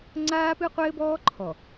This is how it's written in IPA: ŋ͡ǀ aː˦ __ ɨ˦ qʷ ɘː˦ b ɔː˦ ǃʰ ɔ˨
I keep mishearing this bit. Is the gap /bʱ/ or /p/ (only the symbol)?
p